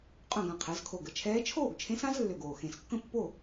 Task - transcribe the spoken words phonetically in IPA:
qʼ œ̃˥˨ ɡ ã˨˩ qʰ ɛ˩˧ z kʰ o˨˩ ɡ ə˥˨ t͡ʃʰ ɛː˧˥ t͡ʃʰ oː˥˨ ɡ t͡ʃʰ ẽ˧˥ s ã˧˥ z lː ø˨˩ ɡ oː˨˩ x ẽ˨˩ s kː ə̃˥˨ pː o˥˨

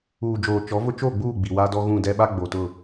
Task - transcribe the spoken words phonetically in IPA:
uː˨ d͡ʒ oː˨ t͡ʃ ɔ˨˦ v ʊ˦ t͡ʃ o˦˨ ɡ͡b uː˦˨ ɡ͡b i˨ w aː˦ d ɔ˦ ɣ ũ˦˨ d ɛ˦ ɓ a˦ ɡ͡b o˨ t ʊ˦˨

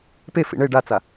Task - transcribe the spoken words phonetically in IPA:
p e f ḭ ɳ e ɖ a t͡s a

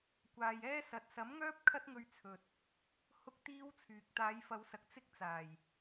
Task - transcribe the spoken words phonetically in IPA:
kʷ aː˨ j ɛː˥ s ɐ˨ t̚ s ɐ˨˥ m ŋ œː˥ p̚ kʰ ɐ˥ t̚ ŋ ɵ˧ ɥ t͡sʰ ɵ˨ t̚ | h ʊ˥ k̚ t̪ iː˥ w t͡sʰ yː˨ k̚ t̪ aː˨˧ j f ɐ˨˧ w s ɐ˨ k̚ t͡s ɪ˥ k̚ t͡s aː˨˩ j

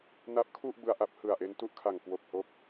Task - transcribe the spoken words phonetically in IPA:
n a˦˥ p̚ kʰ u˥˩ ʔ b ɯ˧ a̯ ʔ a˦˥ p̚ h ɯ˨˩ a̯ ʔ e˧ n t u˥˩ ʔ kʰ a˨˩ ŋ k w o˨˩ k̚ h o˦˥ k̚

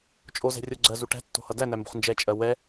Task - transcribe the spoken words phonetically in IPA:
t͡ʃʼ o z ɛ̤ rʲ o ɡ͡ǀ ɜ z u ʈ æ̤ tː o̤ h ʌ d æ n æ m b o̤ χ n d͡ʒ ɛ t͡ʃʼ ɜ w ɛ

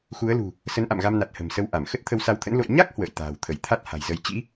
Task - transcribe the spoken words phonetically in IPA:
x u˨˦ ə̯ l ṳ˨˩ | s ə˨˦ n ʔ a̰˧˨ m ɣ a˧ m n a˨˩ t̚ h ə̤˨˩ m s ə˧ w ʔ a˧˩ m x ə˦˥ t̚ t̪ʰ ə˧ w s a˨˦ w t̪ʰ ə̰˧˥ n l o̰˧˨ j ɲ a˦˥ k̚ h w ə̰ː˧˨ j t̪ a̤ː˨˩ w t̪ʰ ə˧˩ j t̪ʰ a˦˥ t̚ h a̤˨˩ j z ə˧ j t͡ɕ ḭ˧˥

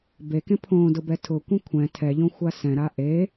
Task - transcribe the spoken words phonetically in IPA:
b e k ẽ pʰ õ d ʊ b ɛ tʰ ʊ kʷ ɛ̃ kʷʰ ɛ̃ tʰ ɛ ʎ õ xʷ a s ɛ̃ ɾ a ʔ e

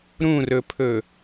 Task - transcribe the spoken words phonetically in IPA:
ɾ ũ r ɵ pʰ ɵ

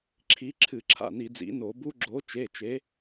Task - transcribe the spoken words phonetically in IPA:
ǁʰ i˨˦ ǁʰ ɨ˧˩˧ ǁʰ a̰˩˧˩ n i˧˩˧ d͡z ḭ˨˦ n o˧˩˧ b u˦˥ ɡ͡ǁ o˨˦ t͡ʃ e˩˧˩ t͡ʃ e˨˦

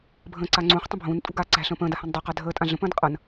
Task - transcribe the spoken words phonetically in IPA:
bʱ ə̃ː ǀ a ŋ͡ǀ ũː χ tˤ ə̃ bʱ ũː n tʼ ṳ ɡ aː ǀ æ̤ ɬ ə̃ː p ə̃ː d a h ã n dˤ æ q a dʱ əː tʼ ã ɮ ə̃ p ə̃ː d qʼ ɐ n

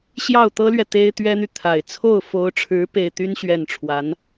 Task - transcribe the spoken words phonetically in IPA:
ɕ j ɑ˥˩ ʊ̯ t̪ ɤ˥ l ɥ ɛ˨ t̪ e˥ ɪ̯ t̪ ɥ ɛ˥ n̪ y˨ t̪ʰ a˨˩ ɪ̯ t͡sʰ o˥˩ ʊ̯ f o˧˥ ʊ̯ ʈ͡ʂʰ ɻ̩˧˥ p e˥˩ ɪ̯ t̪ y˥ n ɕ ɥ ɛ˥˩ n ʈ͡ʂʰ w a˧˥ n

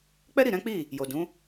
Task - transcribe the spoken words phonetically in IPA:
k͡p ɛ˦ ɾ i˦˨ ɾ ɛ̃˨˦ k͡p i˦˨ | j o˨ d ũ˨˦

